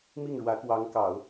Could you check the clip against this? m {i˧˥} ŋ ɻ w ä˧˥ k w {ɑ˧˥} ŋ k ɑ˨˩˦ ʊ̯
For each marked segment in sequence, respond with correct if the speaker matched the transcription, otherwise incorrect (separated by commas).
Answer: incorrect, correct